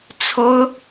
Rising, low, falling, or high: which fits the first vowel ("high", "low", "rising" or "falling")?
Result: high